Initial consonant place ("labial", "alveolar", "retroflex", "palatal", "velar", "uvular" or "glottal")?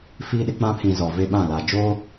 labial